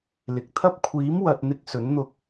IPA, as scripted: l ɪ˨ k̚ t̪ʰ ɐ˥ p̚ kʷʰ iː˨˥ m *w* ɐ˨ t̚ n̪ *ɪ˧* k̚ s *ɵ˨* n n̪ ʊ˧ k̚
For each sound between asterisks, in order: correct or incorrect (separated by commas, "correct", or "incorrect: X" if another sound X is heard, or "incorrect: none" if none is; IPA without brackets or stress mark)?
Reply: correct, correct, incorrect: ɵ˨˥